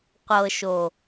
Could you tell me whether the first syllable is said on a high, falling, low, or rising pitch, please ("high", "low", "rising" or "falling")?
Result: low